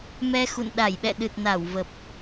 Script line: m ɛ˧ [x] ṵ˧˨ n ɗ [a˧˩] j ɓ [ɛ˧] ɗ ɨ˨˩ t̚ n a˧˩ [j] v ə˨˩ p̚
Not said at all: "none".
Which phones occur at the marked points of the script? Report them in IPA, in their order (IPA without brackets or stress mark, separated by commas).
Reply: x, a˧˩, ɛ̰˧˨, w